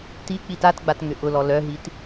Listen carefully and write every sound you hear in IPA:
t i k͡p i t a t ɡ͡b a t ŋ ʏ ʔ ʊ l ɔ l œ ɦ i t

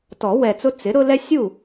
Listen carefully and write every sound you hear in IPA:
t ɔ˨˩˦ w ɛ˨ t͡s ʊ˦ t͡s ɪ˩˥ ɾ ʊ˦ l ɛ˦ sʲ u˥˩

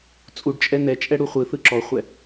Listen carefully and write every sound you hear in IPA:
t͡sʼ u ɖ t͡ʃʼ ɛ n ɛ t͡ʃʼ ɛ ɽ u χʷ ɯ θ ɯ ǁ ɔ χʷ ɛ

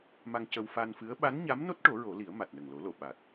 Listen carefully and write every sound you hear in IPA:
m a˧ ŋ c ə˧ w f a˧ n f ɨ˧˥ ə̯ ɓ a˧˥ n ɲ a˧˥ m n o˦˥ t̚ ʈ o˨˩˦ ɹ o˨˩˦ l i˨˩˦ ə̯ m a˨˩ t̚ n ə˨˩ ŋ l o˨˩˦ l o˨˩˨ ɓ a˨˩ t̚

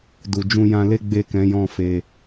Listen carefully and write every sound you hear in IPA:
d u˨ d͡ʒ ũ˧ j ã˧ l e˦ ɡ͡b e˦˨ k ɛ̃˨˦ j ɔ̃˦˨ f e˧

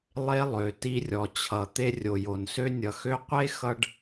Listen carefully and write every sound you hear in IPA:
lˠ e˦ lˠ ø˨ t i˧ rʲ ɔ˨ t͡ɕʰ ʌ˨ t̪ e˧ rʲ o˨ j o˨ n s ø˦ nʲ ʌ˨ x ø˦ qʷ e˦ x ʌ˧ ɖ

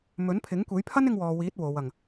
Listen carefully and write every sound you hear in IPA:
m ɵ˨˥ n pʰ ɪ˨˥ ŋ kʷ e˨˥ j pʰ ɐ˥ n ɪ˥ ŋ w ɔː˧ w iː˨˥ t̚ w o˨˧ w ɐ˨ ŋ

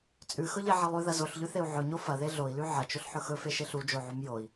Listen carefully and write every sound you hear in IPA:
t͡sʼ ʉ x ɵ ʎ e ʕ ɐ lˠ ʉ ð ɐ z o ɬ ʎ ʉ θ e u̯ ʕ ɵ ɲ o f ɐ ð e ɮ o i̯ l ʉ ʕ ɐ t͡ʃ ɵ ɬ ħ ɵ x ɵ f e ʃ e ɬ u d͡ʒ o ʕ u m j o i̯

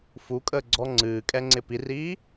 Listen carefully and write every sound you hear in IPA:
f u kʼ əː ɡ͡ǀ ɔ ŋ͡ǀ ɨː kʼ ɛ ŋ͡ǀ ɪ p i r iː

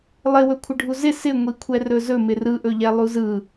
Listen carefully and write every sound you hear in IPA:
lˠ ɪ w ɵ kʷʰ ɪ ɖʱ u z ɪ s ɪ ŋʷ i kʷʰ ɛ r ɵ z ɵ m ɪ r ɯ ʔ ɵ ʎ ɛ lˠ u z ɯ

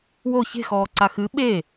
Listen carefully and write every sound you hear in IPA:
w o ç e̤ x ɔː ǀ a x ɨ ɓ e

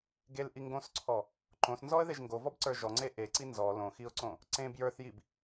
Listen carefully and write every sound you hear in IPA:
ɡ e l ʔ i ŋ ɡ õ s ǀʰ ɔ | ǃ õ s n z ɔ ə̯ ð e ʒ ŋ ɡ o v ɔ b ǀ ə˞ ʒ ɔ ŋ͡ǀ e ʔ e ǀ i n z ɔ l õ x i ʊ̯ ǀ õ | ǀ ẽ b j ə˞ θ j i b

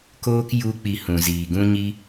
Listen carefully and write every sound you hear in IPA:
k oː˦ k j u˦ k͡p i˧ h ũ˨ z iː˨ ɡ ũ˦ ɲ i˦

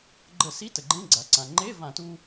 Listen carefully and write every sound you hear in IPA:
ɡ͡ǃ ə˧˩˧ s i˧˥˧ t ə˩ ɡ͡ǃ ẽ˧˥˧ ɡ͡ǀ a˩ ǀ ã˩ ŋ͡ǃ e˧˥˧ v ã˧˩˧ t u˧

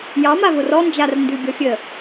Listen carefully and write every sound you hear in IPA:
j ɑ m a v ʊ r ɔ n d͡ʒ a r n d ʉ bʲ ɔ fʲ ə

